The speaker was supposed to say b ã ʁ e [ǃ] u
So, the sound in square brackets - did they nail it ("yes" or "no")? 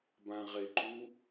yes